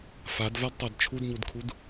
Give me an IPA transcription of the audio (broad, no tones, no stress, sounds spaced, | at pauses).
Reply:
f a d v a d tˤ a d t͡ʃʰ u d ɲ u d kʰ u d